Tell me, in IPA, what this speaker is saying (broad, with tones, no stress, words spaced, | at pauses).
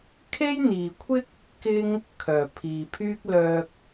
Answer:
kʰe˥jn̪iː˨kʷʰɪ˥k̚ | kɪ˥ŋ | kʰœː˨˩pʰiː˨pʰyː˥k̚ lœː˧k̚